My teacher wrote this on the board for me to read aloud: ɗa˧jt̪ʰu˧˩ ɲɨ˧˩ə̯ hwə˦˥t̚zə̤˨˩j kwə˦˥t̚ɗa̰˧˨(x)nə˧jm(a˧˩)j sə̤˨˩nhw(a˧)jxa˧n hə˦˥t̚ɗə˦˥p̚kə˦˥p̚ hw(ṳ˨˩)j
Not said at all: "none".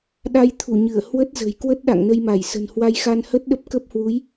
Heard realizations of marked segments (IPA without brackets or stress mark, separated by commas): ŋ, a˧˩, a˧, u˨˦